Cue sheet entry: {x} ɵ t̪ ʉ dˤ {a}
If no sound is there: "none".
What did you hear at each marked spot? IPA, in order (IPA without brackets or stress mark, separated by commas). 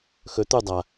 x, a